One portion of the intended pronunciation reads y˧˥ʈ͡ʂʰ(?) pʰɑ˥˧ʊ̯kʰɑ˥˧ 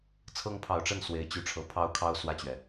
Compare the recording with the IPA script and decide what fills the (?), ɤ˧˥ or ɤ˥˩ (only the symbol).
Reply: ɤ˧˥